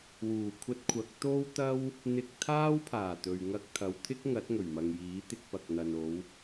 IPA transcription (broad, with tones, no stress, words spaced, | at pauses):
wuː˨˩ kʷʰɐ˧t̚kʷʰɐ˨˥k̚ t̪o˥wt̪ɐ˥w | n̪ɪ˧k̚t̪ʰaː˥wpʰaː˨˩t̪ɵ˨ɥ ŋɐ˧k̚t̪ʰɐ˨˧wt̪ʰɪ˥k̚ŋɐ˨˥t̚ ŋɵ˨˩ɥmɐ˨ŋjiː˨˥t̪ɪ˧k̚ pɐ˨k̚n̪ɐ˨no˨˧w